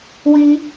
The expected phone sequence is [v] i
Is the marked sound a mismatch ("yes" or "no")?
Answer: yes